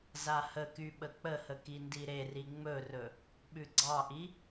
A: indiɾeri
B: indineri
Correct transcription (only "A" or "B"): A